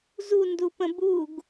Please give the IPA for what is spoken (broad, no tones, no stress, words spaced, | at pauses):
zundupə̃ buɡ